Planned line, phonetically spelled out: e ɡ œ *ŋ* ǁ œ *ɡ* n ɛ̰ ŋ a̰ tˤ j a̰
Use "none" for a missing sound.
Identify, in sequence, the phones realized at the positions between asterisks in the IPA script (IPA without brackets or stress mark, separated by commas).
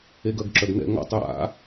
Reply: ɡ, ɡ